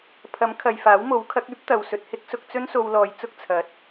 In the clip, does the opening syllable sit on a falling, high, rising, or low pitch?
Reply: rising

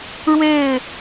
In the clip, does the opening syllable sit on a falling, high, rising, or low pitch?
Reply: falling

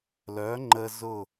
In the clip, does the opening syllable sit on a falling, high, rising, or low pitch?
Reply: rising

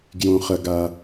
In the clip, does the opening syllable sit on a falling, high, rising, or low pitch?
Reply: low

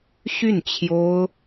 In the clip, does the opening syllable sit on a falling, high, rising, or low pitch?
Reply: falling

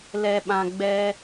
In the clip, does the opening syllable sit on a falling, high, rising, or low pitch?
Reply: high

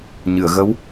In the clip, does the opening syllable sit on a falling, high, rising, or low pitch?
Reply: low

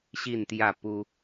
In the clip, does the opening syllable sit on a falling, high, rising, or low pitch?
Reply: falling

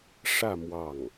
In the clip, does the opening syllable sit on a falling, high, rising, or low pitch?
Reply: falling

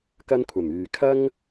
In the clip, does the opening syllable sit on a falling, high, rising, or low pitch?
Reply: high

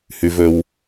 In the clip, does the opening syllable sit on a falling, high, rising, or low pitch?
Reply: low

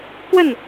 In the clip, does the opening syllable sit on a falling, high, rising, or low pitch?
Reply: falling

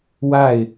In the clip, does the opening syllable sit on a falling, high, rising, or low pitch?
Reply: falling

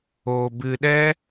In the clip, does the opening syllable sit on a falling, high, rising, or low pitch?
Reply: low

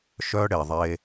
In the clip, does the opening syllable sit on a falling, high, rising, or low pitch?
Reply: high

